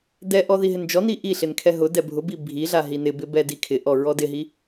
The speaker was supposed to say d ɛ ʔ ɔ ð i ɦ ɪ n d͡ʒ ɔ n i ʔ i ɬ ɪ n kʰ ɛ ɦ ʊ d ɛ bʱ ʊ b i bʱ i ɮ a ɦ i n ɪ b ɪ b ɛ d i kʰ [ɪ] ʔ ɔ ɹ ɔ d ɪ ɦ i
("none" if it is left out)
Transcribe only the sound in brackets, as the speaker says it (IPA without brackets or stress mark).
ɪ